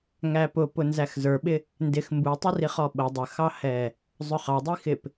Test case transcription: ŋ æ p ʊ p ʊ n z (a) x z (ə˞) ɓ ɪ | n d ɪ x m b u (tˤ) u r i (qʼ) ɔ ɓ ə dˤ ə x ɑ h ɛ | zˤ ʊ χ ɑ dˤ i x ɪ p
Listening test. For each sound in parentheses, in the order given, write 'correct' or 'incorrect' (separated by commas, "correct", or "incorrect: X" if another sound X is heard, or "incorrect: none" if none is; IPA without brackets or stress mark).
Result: incorrect: æ, correct, correct, incorrect: χ